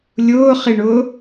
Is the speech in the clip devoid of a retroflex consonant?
no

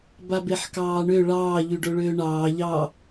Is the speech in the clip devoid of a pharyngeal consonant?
no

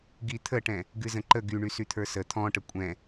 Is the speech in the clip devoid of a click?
no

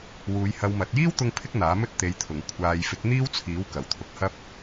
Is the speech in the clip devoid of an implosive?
yes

